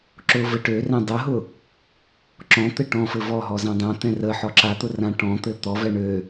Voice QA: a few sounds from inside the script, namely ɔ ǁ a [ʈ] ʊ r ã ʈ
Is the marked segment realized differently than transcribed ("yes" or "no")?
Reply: yes